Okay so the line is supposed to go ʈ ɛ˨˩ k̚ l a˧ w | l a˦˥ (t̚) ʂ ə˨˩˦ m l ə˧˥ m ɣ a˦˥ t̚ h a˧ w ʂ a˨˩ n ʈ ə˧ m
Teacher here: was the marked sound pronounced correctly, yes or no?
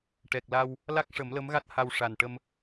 no